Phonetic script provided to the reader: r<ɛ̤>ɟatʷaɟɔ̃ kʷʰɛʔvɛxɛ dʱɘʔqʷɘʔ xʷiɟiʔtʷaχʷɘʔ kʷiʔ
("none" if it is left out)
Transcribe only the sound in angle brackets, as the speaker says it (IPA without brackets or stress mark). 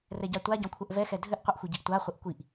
ɛ